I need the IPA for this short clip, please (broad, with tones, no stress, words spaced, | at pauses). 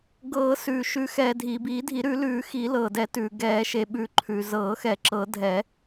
ɡɤː˨˩˦sʉː˩ ʃʉ˨˩˦xɛː˩ dʱiː˩biː˨˩˦dʱi˨˩˦ ɾʉ˨˩˦lʉː˨˩˦xi˨˩˦ lɤː˩dɛ˨˩˦tʉː˩ ɡɛː˨˩˦ʃe˩ɓʉ˨˩˦ ǃʰʉ˩zɤː˨˩˦xɛ˨˩˦ ǁɤ˨˩˦ dʱɛ˨˩˦